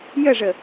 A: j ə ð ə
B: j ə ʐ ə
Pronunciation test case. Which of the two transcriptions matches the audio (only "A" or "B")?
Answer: B